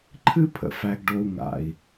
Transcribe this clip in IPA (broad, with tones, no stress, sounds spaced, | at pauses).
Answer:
ǃʰ ɨ˦ pʰ ə̰˨ f æ˨ ɡ ɖ o˨ u̯ ŋ a̰˨ i̯